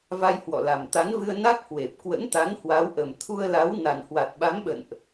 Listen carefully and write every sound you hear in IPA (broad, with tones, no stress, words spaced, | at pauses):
va˧jhwɔ̰˧˨la˨˩m t̪a˨˦nvɨ˧ə̯ na˦˥k̚hwe˨˩p̚ kwə̰˧˥nt̪a˨˦n hwa˨˦wʔə˨˩m t̪ʰu˧ə̯la˨˦w na˨˩nhwa˨˩t̚ɓa˨˦mɓə̰˧˨nʔ